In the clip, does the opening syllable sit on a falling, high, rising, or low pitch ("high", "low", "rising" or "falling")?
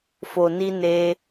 low